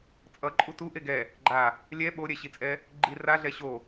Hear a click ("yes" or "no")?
yes